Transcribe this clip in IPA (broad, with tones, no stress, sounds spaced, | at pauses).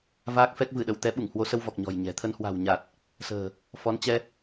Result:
v aː˦˥ k̚ f ɛ˦˥ k̚ v ɨ˧˩ ɗ ə˧˩ w t̪ ɛ˨˦ ɓ u˧˩ ŋ h w o˨˦ s ə˧ w v ɔ˨˩ k̚ ɲ ɔ̤˨˩ j ɲ ɛ̤˨˩ t̪ʰ ə˧ n h w a̤˨˩ w ɲ a˨˩ t̚ | s ə̤ː˨˩ | f ɔ˨˦ n t͡ɕ ɛ˧